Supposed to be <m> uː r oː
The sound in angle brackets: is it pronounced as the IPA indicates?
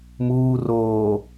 yes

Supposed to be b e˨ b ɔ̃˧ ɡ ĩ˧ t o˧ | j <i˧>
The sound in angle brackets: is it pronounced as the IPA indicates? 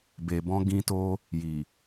no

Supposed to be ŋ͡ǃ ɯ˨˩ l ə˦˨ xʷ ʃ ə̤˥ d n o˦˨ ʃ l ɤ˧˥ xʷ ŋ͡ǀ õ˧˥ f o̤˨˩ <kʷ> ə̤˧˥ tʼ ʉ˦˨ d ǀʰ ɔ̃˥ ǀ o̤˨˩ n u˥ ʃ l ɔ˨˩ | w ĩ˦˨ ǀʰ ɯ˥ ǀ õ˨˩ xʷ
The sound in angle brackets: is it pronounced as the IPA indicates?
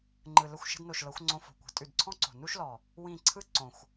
yes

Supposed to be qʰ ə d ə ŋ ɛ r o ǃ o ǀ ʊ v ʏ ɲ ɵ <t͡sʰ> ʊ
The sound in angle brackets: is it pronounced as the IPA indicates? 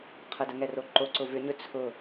yes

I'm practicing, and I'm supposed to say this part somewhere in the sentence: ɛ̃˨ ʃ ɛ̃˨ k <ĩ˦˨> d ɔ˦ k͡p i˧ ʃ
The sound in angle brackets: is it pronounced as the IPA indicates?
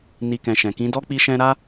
no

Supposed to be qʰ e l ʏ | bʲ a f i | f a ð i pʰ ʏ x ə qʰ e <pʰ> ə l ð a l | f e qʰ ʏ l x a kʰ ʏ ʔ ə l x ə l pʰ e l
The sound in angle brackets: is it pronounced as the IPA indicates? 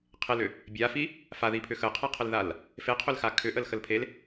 no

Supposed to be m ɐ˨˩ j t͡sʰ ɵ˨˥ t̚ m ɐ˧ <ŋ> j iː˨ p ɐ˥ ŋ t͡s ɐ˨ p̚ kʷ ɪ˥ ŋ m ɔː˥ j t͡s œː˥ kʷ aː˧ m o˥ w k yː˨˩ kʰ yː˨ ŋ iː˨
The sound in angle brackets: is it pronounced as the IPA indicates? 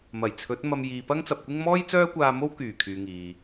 no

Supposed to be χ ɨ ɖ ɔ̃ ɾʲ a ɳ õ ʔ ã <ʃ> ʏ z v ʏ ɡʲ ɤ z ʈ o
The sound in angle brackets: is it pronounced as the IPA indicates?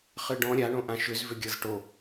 yes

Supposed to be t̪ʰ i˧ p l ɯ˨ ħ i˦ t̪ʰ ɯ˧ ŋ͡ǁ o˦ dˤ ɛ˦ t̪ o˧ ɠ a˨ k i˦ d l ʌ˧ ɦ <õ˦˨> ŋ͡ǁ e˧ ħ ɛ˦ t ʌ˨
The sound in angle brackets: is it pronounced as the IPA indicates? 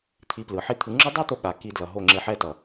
no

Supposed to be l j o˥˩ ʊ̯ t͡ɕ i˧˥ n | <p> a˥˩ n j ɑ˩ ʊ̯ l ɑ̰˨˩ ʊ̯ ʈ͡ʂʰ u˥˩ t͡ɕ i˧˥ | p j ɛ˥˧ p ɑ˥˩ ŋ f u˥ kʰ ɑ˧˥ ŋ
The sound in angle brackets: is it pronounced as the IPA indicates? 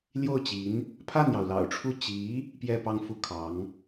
no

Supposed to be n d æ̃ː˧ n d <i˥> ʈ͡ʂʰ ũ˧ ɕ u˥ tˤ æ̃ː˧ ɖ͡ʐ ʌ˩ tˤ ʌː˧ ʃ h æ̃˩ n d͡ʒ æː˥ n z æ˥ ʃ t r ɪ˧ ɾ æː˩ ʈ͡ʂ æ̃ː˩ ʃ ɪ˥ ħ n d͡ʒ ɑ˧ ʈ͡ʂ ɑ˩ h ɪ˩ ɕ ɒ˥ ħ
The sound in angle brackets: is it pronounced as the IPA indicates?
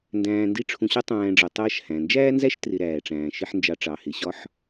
yes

